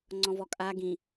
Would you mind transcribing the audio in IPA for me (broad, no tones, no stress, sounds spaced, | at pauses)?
ŋ͡ǀ ɔ̃ v ɔ kʼ a ɡ ĩ